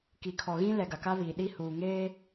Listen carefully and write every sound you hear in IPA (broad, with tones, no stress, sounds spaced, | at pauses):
k i˨ kʰ ɔ˨ ɣ ĩ˦ l ɛ˨ ɡ a˨ k a˦ β iː˨ ɗ i˦ h uː˨ ŋ eː˦